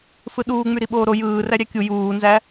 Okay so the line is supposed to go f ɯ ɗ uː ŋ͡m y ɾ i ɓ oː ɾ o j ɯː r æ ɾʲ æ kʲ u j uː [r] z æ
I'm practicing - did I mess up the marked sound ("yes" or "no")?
yes